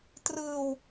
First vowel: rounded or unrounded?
unrounded